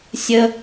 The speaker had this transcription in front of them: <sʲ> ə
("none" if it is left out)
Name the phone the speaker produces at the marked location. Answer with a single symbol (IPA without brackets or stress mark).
sʲ